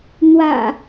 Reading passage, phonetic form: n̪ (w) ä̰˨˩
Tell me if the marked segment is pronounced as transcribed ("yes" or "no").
yes